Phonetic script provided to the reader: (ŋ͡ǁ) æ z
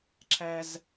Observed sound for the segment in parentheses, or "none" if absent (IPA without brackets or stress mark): ǁʰ